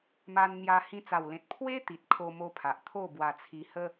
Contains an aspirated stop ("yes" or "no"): yes